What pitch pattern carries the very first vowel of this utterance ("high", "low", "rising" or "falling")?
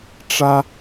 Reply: high